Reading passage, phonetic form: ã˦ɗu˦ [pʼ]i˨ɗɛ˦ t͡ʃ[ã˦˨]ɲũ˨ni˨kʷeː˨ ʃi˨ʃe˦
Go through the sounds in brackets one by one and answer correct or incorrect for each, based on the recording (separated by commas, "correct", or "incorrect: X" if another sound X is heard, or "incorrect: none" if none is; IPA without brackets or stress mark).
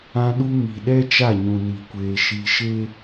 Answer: incorrect: m, incorrect: a˦˨